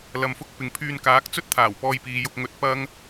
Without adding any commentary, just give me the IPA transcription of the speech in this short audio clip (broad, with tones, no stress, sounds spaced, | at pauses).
l ɐ˨ m f ʊ˥ k̚ p ɪ˨ ŋ pʰ yː˧ n k aː˨˥ k̚ t͡s ɵ˥ t̚ t̪ʰ aː˨˩ w p ɔː˧ j p iː˨ j ʊ˧ k̚ ŋ ɵ˧ t̚ p ɐ˥ ŋ